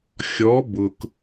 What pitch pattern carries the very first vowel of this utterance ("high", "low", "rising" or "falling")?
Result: rising